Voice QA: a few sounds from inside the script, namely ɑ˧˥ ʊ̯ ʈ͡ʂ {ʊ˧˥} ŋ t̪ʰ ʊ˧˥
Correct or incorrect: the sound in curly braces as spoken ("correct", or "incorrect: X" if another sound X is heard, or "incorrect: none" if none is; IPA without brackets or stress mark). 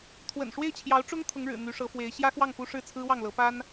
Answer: incorrect: ʊ˥